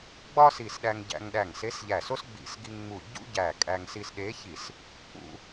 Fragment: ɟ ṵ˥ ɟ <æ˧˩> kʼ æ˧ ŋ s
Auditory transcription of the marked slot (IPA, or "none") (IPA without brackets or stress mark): æ˧˩